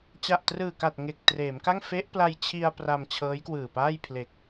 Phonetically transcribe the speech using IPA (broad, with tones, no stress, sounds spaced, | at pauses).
t͡ɕ a˨˩ ʔ t r ɯː˨˩ k a˨˩ t̚ ŋ e˨˩ k̚ t r eː˩˦ m k a˥˩ ŋ f e˦˥ ʔ p l a˧ j t͡ɕʰ i˧ a̯ p r a˧ m t͡ɕʰ ɤː˦˥ j k w ɯː˨˩ p aː˥˩ j pʰ l e˨˩ k̚